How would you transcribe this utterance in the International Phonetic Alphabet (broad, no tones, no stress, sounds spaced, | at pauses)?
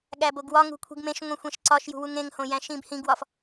ɠ æ b o ɡ w ɒ ŋ ṳ kʷʰ i̤ ɡ m ẽ ʃ ŋʷ ĩ xʷ ẽ ʃ ǀ ɒ ʃ j ṳ w u ŋ ẽ ŋ h õ j æ̃ ʃ ĩ b h ĩ ɡ w ɒ f